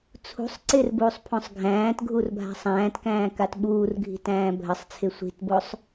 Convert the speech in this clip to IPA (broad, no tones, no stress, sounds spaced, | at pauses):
t͡sʰ ṳ sˤ ǀ ɪ r b uː sˤ pʰ õ sˤ ɡʱ æ̃ː t ɡʱ u r bʱ a̤ sˤ æ̃ː t k æ̃ː k a t ɓ uː r ɡʱ i̤ t æ̃ː bʱ ə sˤ t͡sʰ ɪ sʷ i̤ t b o sˤ